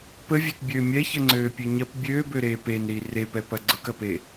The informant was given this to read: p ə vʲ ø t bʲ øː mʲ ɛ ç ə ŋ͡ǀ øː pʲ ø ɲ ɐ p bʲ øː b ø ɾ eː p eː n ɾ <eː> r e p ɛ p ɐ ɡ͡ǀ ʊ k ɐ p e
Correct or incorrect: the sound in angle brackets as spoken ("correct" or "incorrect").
incorrect